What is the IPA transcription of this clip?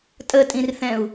tʼ ə tʼ ĩ r θ ɛ̃ u̯

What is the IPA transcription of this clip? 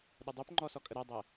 ɗ ə dˤ ø p ŋ͡ǃ ɔ s ɔ kʼ ə ɾ ɛ dˤ ɛ

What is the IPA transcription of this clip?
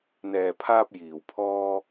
n̪ ɛː˨ pʰ aː˧ p̚ j iː˨˩ w pʰ ɔː˧

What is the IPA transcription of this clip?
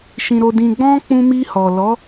ʃ ĩ˨ ɾ o˨ d ĩ˨ ɡ͡b ɔ̃˧ k͡p ũ˧ m i˧ h ɔ˨ l ɔ˨˦

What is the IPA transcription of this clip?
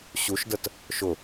ɕ u ʃ d ə t | ʃ ʊ

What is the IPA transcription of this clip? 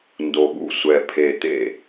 n d o˨˩ ɠ ṵ˥˩ sʷ ɛ˨˩ pʰ e˨˩ t̪ ḛ˥˩

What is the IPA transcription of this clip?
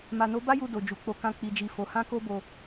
m a˨ n o˨˦ b a˦ j u˧ d o˨ d͡ʒ u˨ k͡p o˨˦ k ã˧ k͡p i˨ d͡ʒ i˨ f o˨˦ h ã˦ k o˦ b o˧

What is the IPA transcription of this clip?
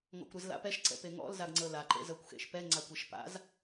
ŋ ɔ̰ kʷ ɾ ɯ z l a̰ p ɛ ʃ ǀ ɛ̰ p e ŋ ɔ̰ l z a ɡ ŋ͡ǀ ɤ l a ǃ ḛ z ɤ kʷ x ḛ ʃ p ɛ ŋ͡ǀ a kʷ e ʃ p a̰ z

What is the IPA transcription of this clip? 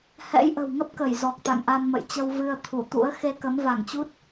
h ɛ̰˧˥ j ʔ ə̤˨˩ w ŋ ə˦˥ p̚ k ə˧˩ j z ɔ˨˩ k̚ t̪ a̰˧˨ ŋ ʔ a˧ n m ə̰˧˨ j t͡ɕ ə˧ w v ɨ˧ ə̯ t̪ʰ u˧˩ t̪ ṵ˧˥ ə̯ x e˧ k ə˨˦ m v a˧˩ ŋ t͡ɕ u˦˥ t̚

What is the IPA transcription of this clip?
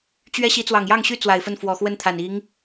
t͡ɕ ɥ ɛ˥ ɕ i˧˥ t͡s w ɑ˨˩ ŋ j ɑ˥˩ ŋ ɕ y˥ t͡s w a˨˩ ɪ̯ f ə˥˩ n f w ɔ˨˩ x w ə˥˩ n t̪ʰ a˨˩ n i˧˥ ŋ

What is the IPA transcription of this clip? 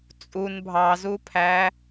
t͡sʼ u n bʱ ɑ z u pʰ æ

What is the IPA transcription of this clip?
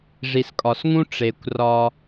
ʐ i˩ s kʼ ɒ˩ s ŋ ũ˥ ʈ͡ʂ e˩ kʷ r ɒ˧

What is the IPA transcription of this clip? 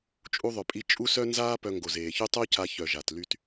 t͡ʃʼ u˧ ðˤ œ˨ pʼ i˧ t͡ʃʼ u˦ s œ˦ n z aː˦ p œ˧ ŋ ɡ o˨ z eː˨ ç y˦ tˤ o˦ c a˧ ç œ˨ ʒ a˨ t l y˦ t

